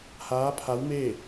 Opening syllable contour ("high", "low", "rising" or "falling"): rising